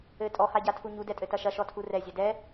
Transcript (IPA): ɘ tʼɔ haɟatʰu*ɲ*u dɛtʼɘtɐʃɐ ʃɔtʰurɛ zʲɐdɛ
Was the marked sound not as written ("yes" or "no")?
no